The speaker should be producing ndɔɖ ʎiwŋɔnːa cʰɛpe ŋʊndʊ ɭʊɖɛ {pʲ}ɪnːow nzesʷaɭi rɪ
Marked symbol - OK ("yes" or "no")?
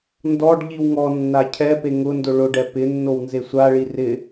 no